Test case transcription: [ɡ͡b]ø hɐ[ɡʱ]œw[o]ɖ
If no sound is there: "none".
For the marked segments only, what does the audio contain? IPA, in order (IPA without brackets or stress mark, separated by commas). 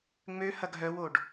ŋ͡m, ɡʱ, o